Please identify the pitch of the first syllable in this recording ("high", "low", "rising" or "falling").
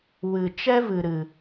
low